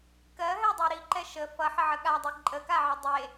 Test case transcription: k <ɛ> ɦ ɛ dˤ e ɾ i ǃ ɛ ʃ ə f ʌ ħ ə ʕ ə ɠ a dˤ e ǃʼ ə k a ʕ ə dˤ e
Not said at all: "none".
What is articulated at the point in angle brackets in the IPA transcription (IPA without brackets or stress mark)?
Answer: ɜ